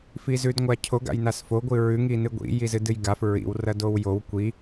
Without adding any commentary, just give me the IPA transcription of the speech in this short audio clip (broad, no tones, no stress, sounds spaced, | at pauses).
f i z ʉ d ŋʷ a cʰ o ɡ a̰ j n a s f o ɡʷ ɨ ɹ ʉ ŋ i n ɨ ɡʷ ḭ j i z ɨ d ɨ j ɡ a f ɹ ḭ w r ɐ d o w j o w kʷ i